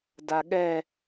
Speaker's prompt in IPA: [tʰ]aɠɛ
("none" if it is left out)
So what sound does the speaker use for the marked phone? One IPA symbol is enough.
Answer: d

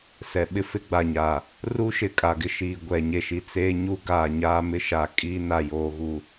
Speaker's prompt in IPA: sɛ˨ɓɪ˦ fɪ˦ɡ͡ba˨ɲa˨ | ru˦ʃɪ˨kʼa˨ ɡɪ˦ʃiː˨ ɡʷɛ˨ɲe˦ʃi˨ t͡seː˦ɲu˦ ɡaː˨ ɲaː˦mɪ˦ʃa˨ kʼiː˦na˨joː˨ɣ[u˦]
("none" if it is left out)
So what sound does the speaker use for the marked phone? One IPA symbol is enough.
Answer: u˨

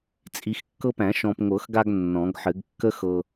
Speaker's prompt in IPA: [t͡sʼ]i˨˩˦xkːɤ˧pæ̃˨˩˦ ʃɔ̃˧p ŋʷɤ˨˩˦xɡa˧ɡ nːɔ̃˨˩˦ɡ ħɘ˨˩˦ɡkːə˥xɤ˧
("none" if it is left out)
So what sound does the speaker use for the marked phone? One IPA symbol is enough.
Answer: t͡sʼ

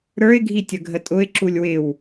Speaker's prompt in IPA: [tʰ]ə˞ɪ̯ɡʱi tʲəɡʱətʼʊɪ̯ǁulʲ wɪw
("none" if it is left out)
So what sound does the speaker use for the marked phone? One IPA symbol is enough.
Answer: ɾ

